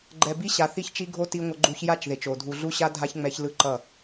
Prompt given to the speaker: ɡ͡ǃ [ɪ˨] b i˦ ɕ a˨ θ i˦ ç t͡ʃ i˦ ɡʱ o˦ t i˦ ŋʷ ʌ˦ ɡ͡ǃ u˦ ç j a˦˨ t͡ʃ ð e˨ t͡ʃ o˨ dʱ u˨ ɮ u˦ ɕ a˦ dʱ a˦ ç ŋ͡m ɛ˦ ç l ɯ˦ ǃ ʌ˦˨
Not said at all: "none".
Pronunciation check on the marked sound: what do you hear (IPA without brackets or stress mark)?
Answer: ɛ˨